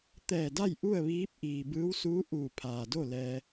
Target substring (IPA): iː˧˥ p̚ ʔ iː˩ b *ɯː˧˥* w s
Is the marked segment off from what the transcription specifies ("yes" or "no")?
no